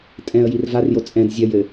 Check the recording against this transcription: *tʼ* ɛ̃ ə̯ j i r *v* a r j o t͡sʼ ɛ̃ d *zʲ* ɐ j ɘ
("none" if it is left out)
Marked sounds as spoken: tʼ, v, zʲ

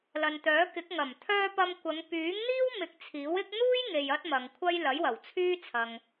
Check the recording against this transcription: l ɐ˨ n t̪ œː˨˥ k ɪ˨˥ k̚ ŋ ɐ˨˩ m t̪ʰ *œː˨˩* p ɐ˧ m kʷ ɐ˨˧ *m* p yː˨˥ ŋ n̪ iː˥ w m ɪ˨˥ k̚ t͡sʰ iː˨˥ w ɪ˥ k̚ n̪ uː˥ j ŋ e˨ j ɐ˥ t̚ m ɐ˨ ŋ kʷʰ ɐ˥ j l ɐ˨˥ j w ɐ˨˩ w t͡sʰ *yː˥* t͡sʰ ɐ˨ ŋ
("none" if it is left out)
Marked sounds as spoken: œː˧, ŋ, yː˥

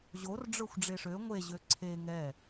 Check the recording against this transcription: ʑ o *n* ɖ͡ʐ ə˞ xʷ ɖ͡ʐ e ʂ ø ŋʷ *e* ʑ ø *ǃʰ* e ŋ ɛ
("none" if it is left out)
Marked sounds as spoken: r, e, ǀʰ

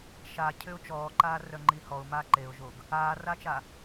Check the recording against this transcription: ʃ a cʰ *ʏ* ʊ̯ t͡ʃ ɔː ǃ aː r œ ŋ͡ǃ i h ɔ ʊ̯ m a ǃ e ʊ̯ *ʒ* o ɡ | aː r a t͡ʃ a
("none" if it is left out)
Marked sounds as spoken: ʏ, ʒ

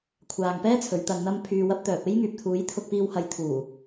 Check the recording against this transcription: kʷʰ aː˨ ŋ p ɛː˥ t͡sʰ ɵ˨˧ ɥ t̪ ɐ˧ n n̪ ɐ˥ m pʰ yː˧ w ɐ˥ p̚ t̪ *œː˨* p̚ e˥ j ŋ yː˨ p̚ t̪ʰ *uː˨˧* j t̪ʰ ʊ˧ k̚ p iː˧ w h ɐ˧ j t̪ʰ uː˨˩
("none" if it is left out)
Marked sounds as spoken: œː˨, uː˨˧

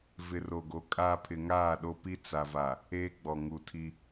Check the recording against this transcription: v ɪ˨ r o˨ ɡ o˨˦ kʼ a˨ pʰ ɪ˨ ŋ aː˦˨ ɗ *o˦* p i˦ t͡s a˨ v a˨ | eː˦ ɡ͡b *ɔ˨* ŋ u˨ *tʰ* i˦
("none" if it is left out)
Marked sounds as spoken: o˦, ɔ˨, tʰ

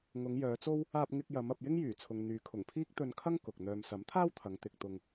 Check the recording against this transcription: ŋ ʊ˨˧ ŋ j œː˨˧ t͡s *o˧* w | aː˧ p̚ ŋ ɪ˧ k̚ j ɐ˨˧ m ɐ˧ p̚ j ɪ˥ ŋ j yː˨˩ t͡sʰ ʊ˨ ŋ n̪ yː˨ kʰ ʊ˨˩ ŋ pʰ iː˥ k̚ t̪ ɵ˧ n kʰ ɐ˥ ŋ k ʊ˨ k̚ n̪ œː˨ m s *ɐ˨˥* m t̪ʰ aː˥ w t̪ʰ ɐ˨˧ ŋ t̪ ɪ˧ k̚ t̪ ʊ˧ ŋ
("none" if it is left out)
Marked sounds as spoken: o˥, ɐ˨˥

